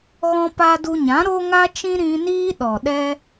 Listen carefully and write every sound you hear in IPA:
ɣ ɔ̃˧ p a˧ d u˧ ɲ ã˨˦ ɾ o˦ ŋ a˦ t͡ʃ ĩ˦ ɾ ĩ˧ n iː˦ ɗ ɔ˨ ɗ ɛ˦

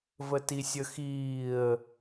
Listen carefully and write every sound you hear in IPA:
v ə t i sʲ ə x iː ə̯

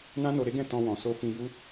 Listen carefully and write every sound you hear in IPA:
n ã˦ n o˧ ɾ e˦ ɡ ɛ̃˦˨ t ɔ̃˧ w ɔ̃˨ s o˧ f ĩ˧ j u˦

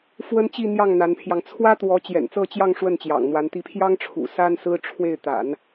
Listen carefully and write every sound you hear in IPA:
f w ə˥ n t͡ɕ i˥˧ n̪ j ɑ˥˩ ŋ n̪ a˧˥ n pʰ j ɑ˧ ŋ t͡sʰ w ä˥ t̪ w ɔ˧˥ t͡ɕ j ɛ̰˨˩ n t͡s ɤ˥˧ t͡ɕ j ɑ˥˧ ŋ ʂ w ə˥˩ n t͡ɕ j ɑ̰˨˩ ŋ n̪ w a˧˥ n t̪ i˧˥ pʰ j ɑ˥ ŋ ʈ͡ʂʰ ṵ˨˩ s a˥ n s ɹ̩˥ ʈ͡ʂʰ w e˥˩ ɪ̯ t̪ a̰˨˩˦ n

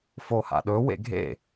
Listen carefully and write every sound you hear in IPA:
f o h a̰ ɗ ɵ w ḛ ɡʱ ḛ

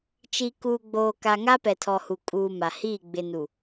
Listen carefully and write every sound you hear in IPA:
t͡ʃ i˨ k uː˨ ɡ͡b oː˨ k a˨ ŋ a˦ p ɛ˨ tʰ ɔ˨ h u˨ kʼ uː˨ m a˨ h iː˦˨ ɡ͡b ɪ˨ n u˨

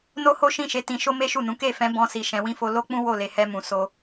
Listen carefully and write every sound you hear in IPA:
n o˦ h o˦ ʃ ĩ˦˨ ʃ e˨˦ t ĩ˧ ʃ o˦ m e˦ ʃ u˦˨ n ũ˨˦ k e˦˨ f ɛ̃˨˦ b ɔ̃˧ s i˨ ʃ ɛ̃˨˦ w ĩ˦ f o˦ l o˦ k͡p ũ˦ w o˦˨ l e˨ h ɛ˧ m ũ˨ s o˧

